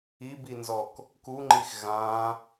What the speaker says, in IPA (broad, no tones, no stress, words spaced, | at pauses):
ibinzɔk | kuŋ͡ǃix ɣã